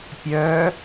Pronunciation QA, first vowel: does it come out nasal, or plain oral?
oral